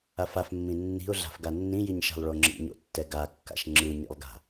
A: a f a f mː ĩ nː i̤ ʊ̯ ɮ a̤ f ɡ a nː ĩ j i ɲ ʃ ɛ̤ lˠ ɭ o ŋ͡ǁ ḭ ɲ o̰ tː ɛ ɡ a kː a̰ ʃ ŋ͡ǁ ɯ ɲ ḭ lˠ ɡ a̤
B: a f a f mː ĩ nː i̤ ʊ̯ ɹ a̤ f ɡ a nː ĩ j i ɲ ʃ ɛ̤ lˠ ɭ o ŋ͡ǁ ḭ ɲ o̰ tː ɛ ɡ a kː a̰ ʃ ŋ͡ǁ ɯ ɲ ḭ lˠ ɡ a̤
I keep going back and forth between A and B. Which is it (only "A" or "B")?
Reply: A